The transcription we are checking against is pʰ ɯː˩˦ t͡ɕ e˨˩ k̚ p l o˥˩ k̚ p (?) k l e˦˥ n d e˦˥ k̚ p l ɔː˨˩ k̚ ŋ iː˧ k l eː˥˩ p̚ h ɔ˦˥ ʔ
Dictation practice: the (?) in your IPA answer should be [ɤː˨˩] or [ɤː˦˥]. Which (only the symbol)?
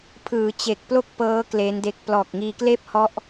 ɤː˦˥